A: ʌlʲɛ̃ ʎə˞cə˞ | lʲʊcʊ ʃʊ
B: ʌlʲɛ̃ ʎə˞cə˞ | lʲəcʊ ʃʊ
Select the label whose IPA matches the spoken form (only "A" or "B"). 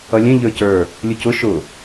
A